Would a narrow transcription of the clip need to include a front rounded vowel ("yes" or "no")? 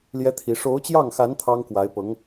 no